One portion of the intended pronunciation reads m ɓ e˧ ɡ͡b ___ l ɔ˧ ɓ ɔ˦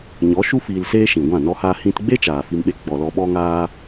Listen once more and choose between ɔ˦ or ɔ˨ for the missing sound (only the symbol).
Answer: ɔ˨